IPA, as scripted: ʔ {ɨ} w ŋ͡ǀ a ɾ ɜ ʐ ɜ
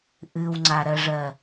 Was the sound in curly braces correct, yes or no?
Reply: yes